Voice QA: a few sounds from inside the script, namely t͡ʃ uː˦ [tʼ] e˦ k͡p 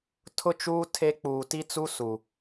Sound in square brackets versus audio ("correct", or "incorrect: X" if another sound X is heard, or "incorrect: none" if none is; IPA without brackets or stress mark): incorrect: tʰ